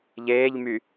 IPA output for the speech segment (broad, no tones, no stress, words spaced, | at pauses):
ʎeːʎmy